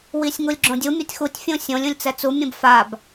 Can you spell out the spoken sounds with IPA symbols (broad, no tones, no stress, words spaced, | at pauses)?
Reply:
wisʲŋulʲɡ͡ǁõdʲu mʲutʲxutʲ fʲũsʲõlʲ ũlʲt͡sɛt͡su mʲũbfab